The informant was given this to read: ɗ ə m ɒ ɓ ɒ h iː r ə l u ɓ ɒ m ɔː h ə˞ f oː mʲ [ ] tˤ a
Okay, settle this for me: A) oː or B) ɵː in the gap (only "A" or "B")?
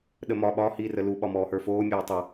A